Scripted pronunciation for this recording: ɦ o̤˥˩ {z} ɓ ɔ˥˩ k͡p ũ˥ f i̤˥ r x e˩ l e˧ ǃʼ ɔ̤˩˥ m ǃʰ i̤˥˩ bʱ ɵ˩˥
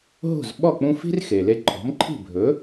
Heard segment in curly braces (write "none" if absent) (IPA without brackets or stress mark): z